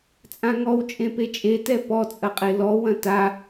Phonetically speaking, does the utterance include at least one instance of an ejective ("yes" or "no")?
yes